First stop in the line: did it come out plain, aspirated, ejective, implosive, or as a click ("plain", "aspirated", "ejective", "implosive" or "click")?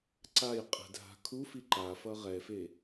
click